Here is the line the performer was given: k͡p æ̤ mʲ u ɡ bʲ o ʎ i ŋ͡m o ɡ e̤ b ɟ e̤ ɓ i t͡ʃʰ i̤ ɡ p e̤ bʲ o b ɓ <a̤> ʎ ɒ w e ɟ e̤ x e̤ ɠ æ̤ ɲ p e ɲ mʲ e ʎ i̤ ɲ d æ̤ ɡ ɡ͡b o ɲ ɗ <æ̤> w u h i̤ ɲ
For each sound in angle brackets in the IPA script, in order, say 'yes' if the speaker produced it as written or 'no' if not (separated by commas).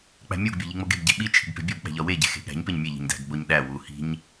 no, no